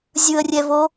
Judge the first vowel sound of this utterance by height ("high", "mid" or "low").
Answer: high